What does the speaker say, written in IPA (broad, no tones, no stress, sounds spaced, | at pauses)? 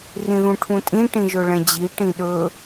r ĩ ð ũ ʈʰ ũ tʼ ĩ ʈ ĩ ʒ ɵ ɭ ɛ̃ d͡ʑ i ʈ ĩ ɗ ɵ